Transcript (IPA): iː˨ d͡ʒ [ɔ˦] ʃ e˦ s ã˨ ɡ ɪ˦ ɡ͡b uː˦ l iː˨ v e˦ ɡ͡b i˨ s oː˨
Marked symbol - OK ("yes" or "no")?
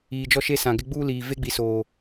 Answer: yes